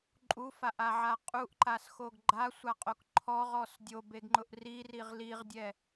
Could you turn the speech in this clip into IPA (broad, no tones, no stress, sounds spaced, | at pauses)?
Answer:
ǃʼ u f a ʔ a ʕ a qʼ u ʔ ǃ a s x o ɡ ɡ͡ǃ a sʷ a qʼ o k ǃʰ ɔ ʁ ɔ s dʲ o b e ɡ ŋ͡ǃ ʊ ʔ r i r i ʁ l i ʁ dʲ ɛ